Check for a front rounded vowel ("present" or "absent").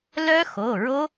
present